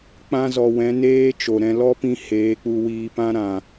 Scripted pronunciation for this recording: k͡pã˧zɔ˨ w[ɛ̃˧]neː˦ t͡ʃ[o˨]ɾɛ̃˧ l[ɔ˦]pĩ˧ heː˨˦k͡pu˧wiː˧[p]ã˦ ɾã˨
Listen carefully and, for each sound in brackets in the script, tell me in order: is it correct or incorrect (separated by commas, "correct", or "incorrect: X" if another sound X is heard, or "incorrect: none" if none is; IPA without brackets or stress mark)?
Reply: incorrect: ɛ̃˨˦, correct, correct, correct